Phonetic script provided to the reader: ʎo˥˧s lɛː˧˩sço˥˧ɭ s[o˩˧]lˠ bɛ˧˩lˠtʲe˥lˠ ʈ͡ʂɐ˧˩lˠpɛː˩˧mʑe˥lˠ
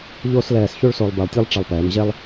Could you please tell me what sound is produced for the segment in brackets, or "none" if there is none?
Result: o˧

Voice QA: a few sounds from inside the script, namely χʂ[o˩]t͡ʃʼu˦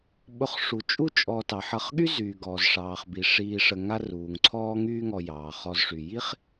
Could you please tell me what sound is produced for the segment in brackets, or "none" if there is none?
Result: u˩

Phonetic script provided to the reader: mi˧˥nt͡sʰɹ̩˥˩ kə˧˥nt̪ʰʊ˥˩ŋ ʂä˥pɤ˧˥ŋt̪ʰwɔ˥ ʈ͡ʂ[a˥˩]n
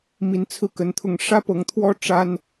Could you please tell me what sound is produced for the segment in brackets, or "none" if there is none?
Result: a˥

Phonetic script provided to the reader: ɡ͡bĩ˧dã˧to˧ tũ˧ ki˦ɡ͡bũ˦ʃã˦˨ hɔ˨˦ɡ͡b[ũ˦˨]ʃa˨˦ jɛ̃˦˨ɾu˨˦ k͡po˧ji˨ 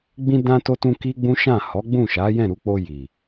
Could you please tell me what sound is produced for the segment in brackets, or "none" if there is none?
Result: ũ˦˨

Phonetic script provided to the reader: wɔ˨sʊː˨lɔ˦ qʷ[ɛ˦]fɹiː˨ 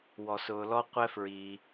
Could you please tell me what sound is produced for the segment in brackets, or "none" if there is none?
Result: ɛ˥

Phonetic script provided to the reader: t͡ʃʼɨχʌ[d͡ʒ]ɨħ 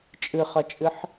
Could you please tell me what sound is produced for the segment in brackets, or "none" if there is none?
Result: t͡ʃʼ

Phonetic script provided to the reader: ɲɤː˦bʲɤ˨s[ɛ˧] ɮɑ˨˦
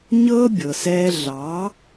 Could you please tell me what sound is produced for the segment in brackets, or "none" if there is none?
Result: ɛ˧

